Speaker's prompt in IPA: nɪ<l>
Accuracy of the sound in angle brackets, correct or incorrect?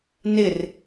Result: incorrect